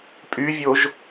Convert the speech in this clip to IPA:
pʼyvʲoʒ

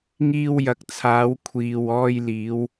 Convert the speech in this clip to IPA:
ŋiː˧wjɐ˨k̚t͡sʰaː˨˧w kʷʰiː˨w ɔː˧jliː˨˧w

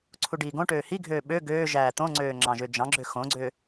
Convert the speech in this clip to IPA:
ǀʰuɖiːɡõʈøː hiɡʱøː ɓø ɡøː ʒæːt̪õŋ͡ǀøː ŋ͡ǁɑ̃ʒød͡ʒɑ̃ɡ͡ǁø xõɡ͡ǀø

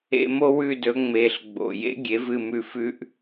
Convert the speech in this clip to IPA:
ḛ˦˨mo˥wʉ˦˨dɵ˩˥ ŋ͡me˩˧˩ɬɡ͡bo̰˩˧˩ jḛ˥ ɡʲe˩˥vɨ˦˨mʉ˦˨ fʉ˥ʔ

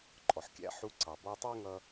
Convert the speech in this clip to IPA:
ǃʼɔ˩ħkʲæ̰˧ ħu˧ ǀɑ˩ bɔ˧tˤə˞˥ŋʌ˧

